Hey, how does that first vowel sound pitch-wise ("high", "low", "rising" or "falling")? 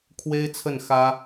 high